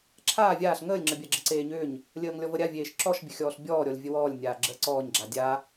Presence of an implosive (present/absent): absent